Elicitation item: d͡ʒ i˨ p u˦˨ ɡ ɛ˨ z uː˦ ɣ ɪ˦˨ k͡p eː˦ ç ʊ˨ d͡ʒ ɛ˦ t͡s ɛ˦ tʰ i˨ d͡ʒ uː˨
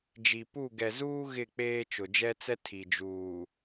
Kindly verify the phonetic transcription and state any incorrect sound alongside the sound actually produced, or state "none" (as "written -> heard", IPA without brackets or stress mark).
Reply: ç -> t͡ʃ